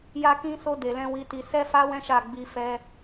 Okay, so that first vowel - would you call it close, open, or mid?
open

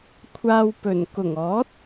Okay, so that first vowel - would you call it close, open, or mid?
open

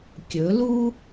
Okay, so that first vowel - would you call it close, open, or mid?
mid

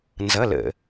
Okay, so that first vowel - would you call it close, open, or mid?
mid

